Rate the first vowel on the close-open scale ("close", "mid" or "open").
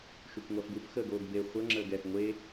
close